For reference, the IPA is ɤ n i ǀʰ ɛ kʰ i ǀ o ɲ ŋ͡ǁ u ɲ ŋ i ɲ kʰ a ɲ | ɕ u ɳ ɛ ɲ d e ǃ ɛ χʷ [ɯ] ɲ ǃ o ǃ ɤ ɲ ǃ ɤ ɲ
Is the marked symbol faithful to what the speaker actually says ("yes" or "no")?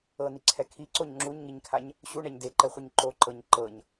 yes